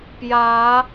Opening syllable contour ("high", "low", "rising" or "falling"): rising